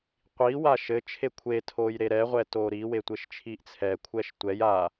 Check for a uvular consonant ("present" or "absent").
present